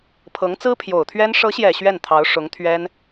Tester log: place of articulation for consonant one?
labial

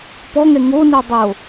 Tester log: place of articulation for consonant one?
labial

